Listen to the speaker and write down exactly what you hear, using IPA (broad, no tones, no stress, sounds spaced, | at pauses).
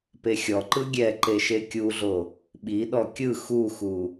p e xʲ ɔ ǃ ɯ ɡʲ ɛ ǃ e ʃ e kʲ u ɮ o | ɓ i ɗ ɔ kʲ ɯ x u x u